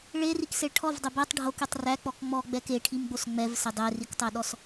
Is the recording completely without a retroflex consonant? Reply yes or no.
no